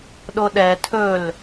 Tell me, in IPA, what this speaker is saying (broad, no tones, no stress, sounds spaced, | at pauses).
ɗ o ɗ ɛ tʰ ɵ l